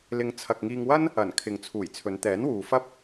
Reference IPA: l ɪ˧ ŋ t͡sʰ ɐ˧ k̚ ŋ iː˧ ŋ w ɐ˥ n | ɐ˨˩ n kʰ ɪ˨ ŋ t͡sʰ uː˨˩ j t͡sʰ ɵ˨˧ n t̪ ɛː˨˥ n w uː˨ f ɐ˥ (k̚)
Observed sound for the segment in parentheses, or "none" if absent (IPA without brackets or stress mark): p̚